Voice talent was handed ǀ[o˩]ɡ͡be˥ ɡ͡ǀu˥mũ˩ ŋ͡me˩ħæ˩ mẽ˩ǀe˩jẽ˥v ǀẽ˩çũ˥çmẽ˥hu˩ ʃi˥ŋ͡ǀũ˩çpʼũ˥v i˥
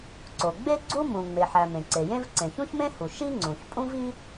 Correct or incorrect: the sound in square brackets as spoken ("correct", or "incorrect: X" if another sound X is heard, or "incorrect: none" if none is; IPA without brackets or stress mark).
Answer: correct